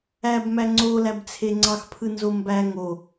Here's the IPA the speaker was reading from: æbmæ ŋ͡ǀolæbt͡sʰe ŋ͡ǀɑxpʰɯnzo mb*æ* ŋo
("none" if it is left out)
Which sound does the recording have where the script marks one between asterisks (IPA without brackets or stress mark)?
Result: æ